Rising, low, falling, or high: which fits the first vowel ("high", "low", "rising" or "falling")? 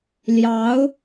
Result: rising